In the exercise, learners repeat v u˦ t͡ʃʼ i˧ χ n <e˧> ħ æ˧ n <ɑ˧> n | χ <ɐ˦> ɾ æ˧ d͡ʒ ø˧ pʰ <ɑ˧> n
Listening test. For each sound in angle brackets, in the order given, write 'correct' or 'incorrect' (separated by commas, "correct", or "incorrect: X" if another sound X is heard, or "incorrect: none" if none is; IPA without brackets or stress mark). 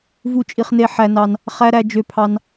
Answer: correct, correct, incorrect: æ˦, correct